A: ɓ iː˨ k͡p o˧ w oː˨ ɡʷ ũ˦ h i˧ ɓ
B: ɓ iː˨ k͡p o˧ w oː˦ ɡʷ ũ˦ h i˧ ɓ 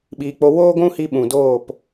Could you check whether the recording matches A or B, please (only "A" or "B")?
B